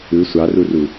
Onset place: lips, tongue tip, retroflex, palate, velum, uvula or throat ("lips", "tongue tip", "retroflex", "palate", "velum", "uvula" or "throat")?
tongue tip